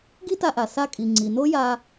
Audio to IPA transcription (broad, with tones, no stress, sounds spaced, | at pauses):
ɡ i˥ t a˧ ʔ a˩ s a˧ kʼ i˩ ŋ͡ǀ i˩ n o˥ j a˧